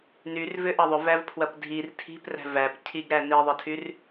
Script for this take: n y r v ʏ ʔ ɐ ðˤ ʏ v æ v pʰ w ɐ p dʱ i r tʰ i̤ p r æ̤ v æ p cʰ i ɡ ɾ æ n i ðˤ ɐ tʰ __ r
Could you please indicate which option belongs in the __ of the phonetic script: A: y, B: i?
A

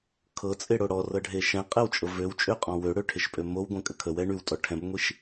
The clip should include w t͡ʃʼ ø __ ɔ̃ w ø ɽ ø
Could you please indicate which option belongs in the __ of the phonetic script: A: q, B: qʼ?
B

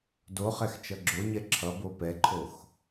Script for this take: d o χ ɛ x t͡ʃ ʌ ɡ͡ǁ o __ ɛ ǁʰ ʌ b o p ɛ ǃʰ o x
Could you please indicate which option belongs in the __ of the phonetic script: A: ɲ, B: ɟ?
A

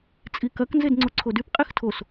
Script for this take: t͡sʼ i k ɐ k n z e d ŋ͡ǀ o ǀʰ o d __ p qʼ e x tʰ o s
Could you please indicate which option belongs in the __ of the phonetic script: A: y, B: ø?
A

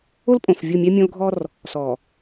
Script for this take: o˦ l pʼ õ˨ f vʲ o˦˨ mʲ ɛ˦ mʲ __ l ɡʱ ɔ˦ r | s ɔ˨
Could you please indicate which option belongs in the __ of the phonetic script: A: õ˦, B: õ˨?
A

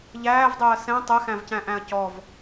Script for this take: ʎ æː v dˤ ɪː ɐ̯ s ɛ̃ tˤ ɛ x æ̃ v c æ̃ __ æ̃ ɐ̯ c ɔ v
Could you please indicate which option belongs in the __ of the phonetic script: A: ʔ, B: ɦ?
A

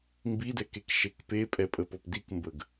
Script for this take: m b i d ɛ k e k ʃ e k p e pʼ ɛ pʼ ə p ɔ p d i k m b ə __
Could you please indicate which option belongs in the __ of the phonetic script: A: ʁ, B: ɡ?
B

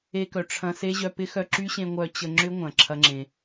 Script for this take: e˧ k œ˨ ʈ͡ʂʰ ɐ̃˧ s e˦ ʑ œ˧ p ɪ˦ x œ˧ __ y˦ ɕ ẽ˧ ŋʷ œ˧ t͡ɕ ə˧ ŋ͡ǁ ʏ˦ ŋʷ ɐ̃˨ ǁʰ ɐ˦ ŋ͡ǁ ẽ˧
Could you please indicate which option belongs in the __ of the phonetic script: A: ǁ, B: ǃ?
A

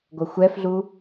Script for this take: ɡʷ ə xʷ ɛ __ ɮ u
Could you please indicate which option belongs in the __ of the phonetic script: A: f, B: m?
A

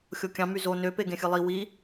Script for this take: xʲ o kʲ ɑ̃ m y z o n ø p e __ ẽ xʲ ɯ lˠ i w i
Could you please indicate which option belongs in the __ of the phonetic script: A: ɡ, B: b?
A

